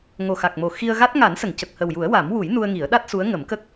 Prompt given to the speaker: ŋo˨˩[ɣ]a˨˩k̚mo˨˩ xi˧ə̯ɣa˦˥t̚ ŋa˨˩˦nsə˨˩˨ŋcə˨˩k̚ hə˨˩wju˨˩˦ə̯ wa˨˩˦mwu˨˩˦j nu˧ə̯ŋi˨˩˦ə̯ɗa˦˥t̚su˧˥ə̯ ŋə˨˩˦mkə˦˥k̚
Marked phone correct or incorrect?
incorrect